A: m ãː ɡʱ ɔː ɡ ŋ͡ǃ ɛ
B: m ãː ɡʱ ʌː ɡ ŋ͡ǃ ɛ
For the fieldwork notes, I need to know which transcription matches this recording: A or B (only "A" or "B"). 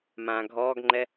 A